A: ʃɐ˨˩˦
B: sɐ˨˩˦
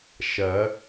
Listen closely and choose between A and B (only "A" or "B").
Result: A